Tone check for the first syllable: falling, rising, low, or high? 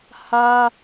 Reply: high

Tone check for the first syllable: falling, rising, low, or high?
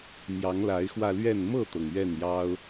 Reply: rising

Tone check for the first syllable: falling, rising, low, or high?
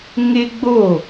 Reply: high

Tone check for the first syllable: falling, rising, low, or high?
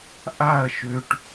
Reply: falling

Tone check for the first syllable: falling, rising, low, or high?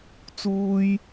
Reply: high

